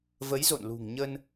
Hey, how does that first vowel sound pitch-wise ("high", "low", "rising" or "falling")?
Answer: rising